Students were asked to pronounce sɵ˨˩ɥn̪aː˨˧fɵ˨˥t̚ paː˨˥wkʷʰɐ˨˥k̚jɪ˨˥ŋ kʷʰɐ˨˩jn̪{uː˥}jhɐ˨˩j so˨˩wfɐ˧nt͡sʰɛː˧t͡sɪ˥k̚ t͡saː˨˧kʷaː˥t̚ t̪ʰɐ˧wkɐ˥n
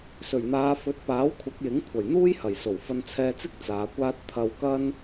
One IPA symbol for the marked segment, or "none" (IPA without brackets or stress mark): uː˥